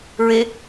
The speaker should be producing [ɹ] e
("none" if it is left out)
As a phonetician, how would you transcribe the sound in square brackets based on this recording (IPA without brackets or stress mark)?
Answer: ɹ